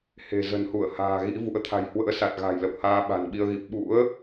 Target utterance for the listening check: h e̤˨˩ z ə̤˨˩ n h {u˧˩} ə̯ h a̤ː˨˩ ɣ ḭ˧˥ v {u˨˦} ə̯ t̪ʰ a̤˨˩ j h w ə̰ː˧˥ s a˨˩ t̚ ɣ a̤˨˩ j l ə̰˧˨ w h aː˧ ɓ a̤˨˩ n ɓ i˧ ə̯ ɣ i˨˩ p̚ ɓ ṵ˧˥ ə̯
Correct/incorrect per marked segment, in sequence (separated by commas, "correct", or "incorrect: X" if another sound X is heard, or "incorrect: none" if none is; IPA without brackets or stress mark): correct, incorrect: ṵ˧˥